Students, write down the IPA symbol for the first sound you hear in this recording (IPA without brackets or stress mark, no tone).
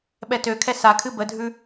ɓ